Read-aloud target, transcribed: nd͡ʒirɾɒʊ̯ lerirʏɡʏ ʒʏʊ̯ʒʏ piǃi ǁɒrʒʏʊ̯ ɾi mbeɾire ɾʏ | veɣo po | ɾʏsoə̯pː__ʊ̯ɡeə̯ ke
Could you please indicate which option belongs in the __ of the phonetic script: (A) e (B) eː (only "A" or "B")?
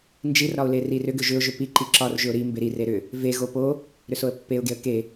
A